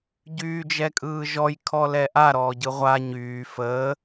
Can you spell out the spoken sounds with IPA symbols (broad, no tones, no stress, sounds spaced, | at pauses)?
ɟ yː d͡ʒ ɛ kʼ ɯː ʒ ɔ j kʰ ɔ l ɛ ʔ a ɾ ɔː ɟ ɯ ʁʷ a ɲ yː f əː